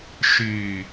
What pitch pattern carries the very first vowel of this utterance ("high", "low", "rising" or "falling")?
low